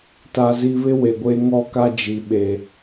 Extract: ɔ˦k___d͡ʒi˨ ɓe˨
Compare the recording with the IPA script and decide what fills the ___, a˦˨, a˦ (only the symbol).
a˦